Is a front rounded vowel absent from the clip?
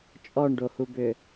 no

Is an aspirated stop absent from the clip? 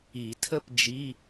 no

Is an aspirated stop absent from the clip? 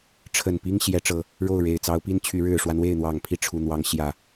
no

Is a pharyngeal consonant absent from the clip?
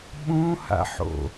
no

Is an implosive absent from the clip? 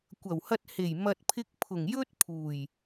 yes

